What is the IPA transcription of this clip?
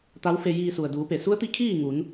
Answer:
t̪ a˧˥ w f e˧ j iː˧ s u˩ ə̯ d uː˩˧ p e˩ s u˧˥ ə̯ t̪ i˧˥ kʰ iː˥˨ ŋ u˩˧ n

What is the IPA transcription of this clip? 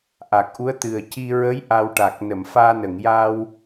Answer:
ʔ a˨˩ k̚ ʔ u˧˥ ə̯ t̪ ɨ˨˩ ə̯ c i˧ ɹ ə˧˥ j ʔ a˧ w ʈ a˨˩ k̚ n ə˨˩˨ m f aː˧ n ə˨˩˨ ŋ j a˧ w

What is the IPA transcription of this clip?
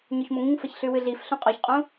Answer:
ɲ o ç m o ŋ ĩ ŋ f ɐ ç ɬ ʉ w ɨ ɮ i f ɬ ũ qʼ o ç qʼ ũ

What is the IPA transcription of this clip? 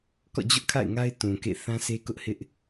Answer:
k ɔ̰˦˨ d͡ʑ ʊ˦ ʔ kʰ a̰˦˨ ɪ̯ ŋ a˦ ɪ̯ t ũ˨ k ḛ˦˨ θ ã˦ s e˦ k ʊ˦ ʔ h ɪ˦ ʔ

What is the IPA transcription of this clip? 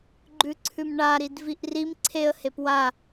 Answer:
ɡ͡ǃ ʉ ǀʰ ʉ m ɳ a ɾ i d v i ʔ r i m ǀʰ e ə̯ h e p w a

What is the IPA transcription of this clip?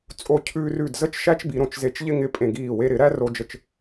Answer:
t͡sʼ o˧ cʰ ʉː˧ r ʉ˧˩ d z ə˥˧ t͡ʃ ʃ æ˥ t͡ʃ b i˩˧ ɾ õ˩˧ t͡ʃ z e˧ t͡ʃ ʎ ɪ˥ ŋ ɪ˧ pʼ ẽ˧˩ ɡ iː˧˩ w e˧ ɾ ɪ˩˧ ɾ æ˥ r o˧ d͡ʒ ə˧˩ t͡ʃ

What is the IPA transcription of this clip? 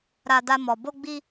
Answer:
ɾ a˧ d a˧ m ɔ˨ b o˧ ɡ͡b i˧

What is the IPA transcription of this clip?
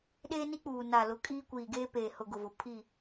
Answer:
ɗ eː˦ n i˦ k͡p uː˨ n a˨ l ʊ˨˦ kʼ iː˦ kʷ iː˨ ɡ eː˦ p eː˨ h ʊ˨ ɡ ʊ˨ v ʊ˨ pʰ i˦˨

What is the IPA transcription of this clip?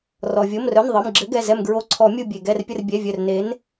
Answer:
r ɔ˩ vʲ o˩˧˩ m r œ˩˧˩ n ðˤ ɯ˩˧˩ m ɡ͡ǁ ɘ˨˥ ɡ ɛ˩˧˩ z ɛ˧˩ m ɡ ɹ o˨˥ ǀʰ ɔ˨˩˦ mʲ u˧˩ bʲ e˩ ɡ ɛ˧˩ r pʲ ə˧˩ r bʲ ɛ˩˧˩ vʲ œ˧˩ r n e˨˥ n

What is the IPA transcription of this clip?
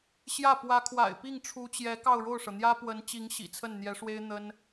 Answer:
ɕ j ä˥˩ p w ä˧˥ kʰ w a̰˨˩ ɪ̯ p i˥˩ ŋ ʈ͡ʂʰ u˧˥ t͡ɕ j ɛ˧˥ k ɑ˥˧ ʊ̯ ɻ o˥˩ ʊ̯ ʂ ɤ˩ n̪ j ä˥ p w ə˧˥ n t͡ɕ i˧˥ ŋ ɕ ḭ˨˩ t͡sʰ ə˥˩ n n̪ j ɛ˧˥ ʂ w e˥ ɪ̯ n̪ ə˥ n

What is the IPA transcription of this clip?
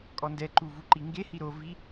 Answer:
kʼ ɔ n d ɛ ǃ u v u ǃ i ŋ ɡ e h i ɾ o v i

